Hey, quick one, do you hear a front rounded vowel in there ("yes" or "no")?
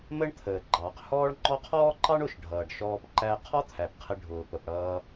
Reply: no